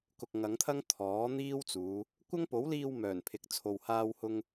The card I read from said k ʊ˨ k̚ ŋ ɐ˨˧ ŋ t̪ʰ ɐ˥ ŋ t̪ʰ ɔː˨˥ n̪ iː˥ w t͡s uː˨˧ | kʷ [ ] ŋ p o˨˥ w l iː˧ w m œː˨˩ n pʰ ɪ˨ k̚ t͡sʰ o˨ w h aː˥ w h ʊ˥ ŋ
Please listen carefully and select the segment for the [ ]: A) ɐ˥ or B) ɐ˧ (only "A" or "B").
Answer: A